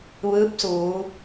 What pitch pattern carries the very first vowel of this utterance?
rising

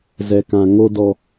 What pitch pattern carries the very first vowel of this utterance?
low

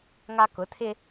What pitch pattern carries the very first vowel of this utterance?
high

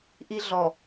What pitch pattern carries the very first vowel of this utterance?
high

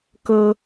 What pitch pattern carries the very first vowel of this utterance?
high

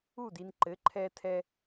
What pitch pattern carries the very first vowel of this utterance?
falling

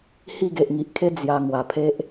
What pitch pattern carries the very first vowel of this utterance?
falling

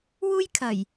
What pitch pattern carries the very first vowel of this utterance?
high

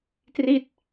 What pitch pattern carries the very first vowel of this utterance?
falling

